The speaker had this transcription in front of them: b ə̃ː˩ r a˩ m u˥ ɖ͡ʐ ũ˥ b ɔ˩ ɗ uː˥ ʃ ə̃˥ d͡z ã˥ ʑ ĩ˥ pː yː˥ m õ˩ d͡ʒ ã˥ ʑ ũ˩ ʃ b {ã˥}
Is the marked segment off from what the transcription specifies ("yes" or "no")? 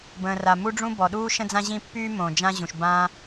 no